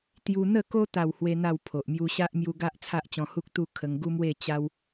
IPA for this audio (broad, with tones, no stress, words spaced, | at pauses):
t̪ju˧n̪ə˥˧ko˦ t̪a˥˧whwe˦n̪a˥˧w pʰo˨ʔmju˦ ɕa˦ʔmju˧ɡa˦ʔ t͡sʰa˦ʔt͡ɕɔ̃˧hu˦k̚ t̪u˥˧ kʰə˧ŋɡu˦mwe˥˧ t͡ɕa˧w